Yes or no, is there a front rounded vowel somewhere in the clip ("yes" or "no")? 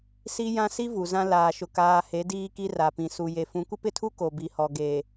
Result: no